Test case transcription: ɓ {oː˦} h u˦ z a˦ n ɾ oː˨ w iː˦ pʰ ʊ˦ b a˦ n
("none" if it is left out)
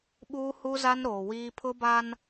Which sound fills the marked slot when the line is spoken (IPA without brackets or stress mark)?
uː˦